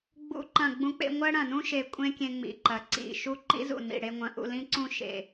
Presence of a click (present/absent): present